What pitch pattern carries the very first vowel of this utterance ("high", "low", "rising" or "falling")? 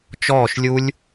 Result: falling